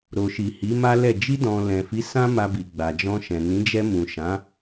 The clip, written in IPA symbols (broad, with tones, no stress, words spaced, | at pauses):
ɾo˨ʃi˨ hi˨˦ma˦lɛ˦˨ d͡ʒi˧dɔ̃˨ lɛ̃˨fi˨˦ sã˦ma˧bi˨ ɡ͡ba˨d͡ʒɔ̃˧ʃɛ̃˨ nĩ˨˦d͡ʒɛ˧mũ˨ ʃã˨˦